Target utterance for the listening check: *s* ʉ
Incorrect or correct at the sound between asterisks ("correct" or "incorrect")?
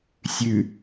incorrect